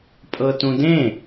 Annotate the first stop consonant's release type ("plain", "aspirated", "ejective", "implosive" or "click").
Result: ejective